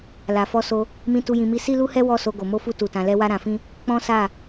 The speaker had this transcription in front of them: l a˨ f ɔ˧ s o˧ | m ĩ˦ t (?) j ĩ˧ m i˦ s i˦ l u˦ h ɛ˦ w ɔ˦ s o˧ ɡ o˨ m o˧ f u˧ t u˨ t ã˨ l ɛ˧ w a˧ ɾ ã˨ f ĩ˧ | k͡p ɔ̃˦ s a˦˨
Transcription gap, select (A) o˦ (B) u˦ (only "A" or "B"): B